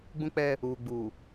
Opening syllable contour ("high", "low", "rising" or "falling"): high